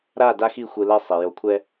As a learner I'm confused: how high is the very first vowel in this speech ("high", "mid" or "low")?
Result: low